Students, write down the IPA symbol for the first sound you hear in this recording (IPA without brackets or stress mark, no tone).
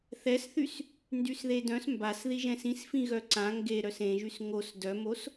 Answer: θ